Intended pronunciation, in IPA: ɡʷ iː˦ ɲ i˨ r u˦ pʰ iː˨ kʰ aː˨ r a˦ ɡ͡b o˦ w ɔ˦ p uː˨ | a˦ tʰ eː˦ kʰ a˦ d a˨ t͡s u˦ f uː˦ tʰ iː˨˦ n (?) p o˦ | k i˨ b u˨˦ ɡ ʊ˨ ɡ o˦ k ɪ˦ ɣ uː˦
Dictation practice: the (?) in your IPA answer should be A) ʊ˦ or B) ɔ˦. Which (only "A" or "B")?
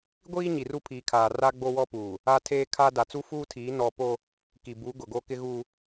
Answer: B